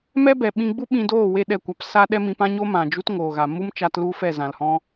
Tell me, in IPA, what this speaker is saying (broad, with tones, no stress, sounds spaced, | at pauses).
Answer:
m ɛ˦ b ɛ˨ ɓ ĩ˧ ɡ͡b u˦ ɓ ĩ˧ d oː˦˨ w e˦˨ ɗ ɛ˦˨ kʷ a˧ p s a˦ ɗ ɛ˦ m ĩ˧ p ã˦ ɲ o˦ m ã˨ d͡ʒ u˦ t ŋ oː˨ ɣ a˨ m u˦ m t͡ʃ a˧ t l u˦ f ɛ˦˨ z ã˨ l h ɔ̃˦